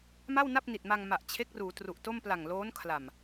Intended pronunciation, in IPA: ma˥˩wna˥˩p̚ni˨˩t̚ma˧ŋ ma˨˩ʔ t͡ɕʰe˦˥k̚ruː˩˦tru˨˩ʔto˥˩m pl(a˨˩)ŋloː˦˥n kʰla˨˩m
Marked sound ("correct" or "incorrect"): correct